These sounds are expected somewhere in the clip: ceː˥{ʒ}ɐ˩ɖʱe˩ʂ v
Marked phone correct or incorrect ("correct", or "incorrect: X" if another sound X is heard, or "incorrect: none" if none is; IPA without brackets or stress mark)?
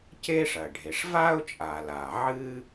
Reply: incorrect: ʂ